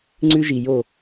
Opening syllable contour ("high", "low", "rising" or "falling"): high